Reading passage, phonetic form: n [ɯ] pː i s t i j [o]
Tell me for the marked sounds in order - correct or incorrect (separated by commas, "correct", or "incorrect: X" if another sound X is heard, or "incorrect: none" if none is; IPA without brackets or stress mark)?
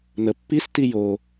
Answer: incorrect: ə, correct